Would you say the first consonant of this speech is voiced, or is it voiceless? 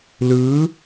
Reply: voiced